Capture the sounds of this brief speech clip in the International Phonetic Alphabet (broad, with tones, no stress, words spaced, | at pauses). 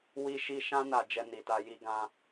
wi˦ʃi˦ ʃã˦ na˧ d͡ʒɛ˧ni˨ta˧ ji˧ɡã˧